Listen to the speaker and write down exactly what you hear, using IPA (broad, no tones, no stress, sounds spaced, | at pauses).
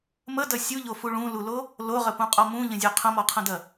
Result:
m ə d ɐ sʲ u ʎ o f u ɭ ũ l u l o | l o ʁ ə p ũ qʼ ɔ m ũ ʎ ə̃ zʲ o qʰ ə̃ m ɔ qʰ ə̃ d ɐ